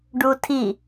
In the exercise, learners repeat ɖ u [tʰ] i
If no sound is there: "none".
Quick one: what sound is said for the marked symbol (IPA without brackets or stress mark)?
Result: tʰ